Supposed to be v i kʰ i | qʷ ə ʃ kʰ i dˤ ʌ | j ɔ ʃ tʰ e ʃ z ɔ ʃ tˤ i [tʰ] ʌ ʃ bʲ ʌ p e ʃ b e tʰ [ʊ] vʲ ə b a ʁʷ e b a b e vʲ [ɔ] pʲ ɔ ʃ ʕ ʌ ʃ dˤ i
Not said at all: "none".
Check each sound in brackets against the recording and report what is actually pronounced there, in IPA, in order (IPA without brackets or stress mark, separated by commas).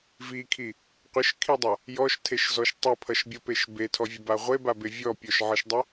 pʰ, ɔ, ɔ